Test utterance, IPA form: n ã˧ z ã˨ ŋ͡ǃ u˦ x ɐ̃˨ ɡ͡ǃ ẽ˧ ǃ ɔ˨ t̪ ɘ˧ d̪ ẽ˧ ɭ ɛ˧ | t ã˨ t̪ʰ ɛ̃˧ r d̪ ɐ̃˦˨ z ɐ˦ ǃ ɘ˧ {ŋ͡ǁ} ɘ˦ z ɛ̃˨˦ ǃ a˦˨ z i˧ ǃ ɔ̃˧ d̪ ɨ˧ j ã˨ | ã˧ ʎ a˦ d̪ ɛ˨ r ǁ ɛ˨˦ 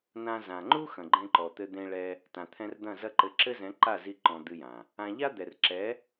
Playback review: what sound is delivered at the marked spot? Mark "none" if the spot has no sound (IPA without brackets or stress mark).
ǁ